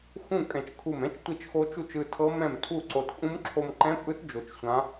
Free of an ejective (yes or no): no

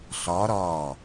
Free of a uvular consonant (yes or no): yes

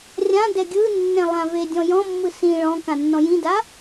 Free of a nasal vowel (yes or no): no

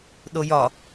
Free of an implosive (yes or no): no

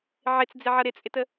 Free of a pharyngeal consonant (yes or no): no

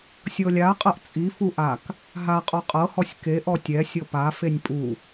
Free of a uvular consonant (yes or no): no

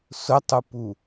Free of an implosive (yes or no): yes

